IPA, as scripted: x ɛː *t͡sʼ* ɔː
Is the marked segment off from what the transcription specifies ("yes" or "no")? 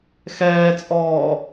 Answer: no